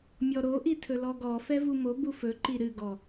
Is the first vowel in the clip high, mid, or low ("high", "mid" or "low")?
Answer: mid